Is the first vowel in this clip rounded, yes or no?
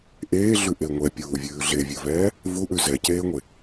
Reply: no